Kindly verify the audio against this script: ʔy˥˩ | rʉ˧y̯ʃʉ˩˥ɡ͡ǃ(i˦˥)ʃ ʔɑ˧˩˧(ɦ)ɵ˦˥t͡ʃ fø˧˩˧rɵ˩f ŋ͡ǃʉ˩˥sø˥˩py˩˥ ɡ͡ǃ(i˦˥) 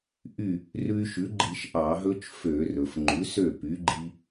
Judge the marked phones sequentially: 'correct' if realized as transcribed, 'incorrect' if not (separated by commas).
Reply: incorrect, correct, correct